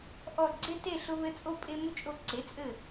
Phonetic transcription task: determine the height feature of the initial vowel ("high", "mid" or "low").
mid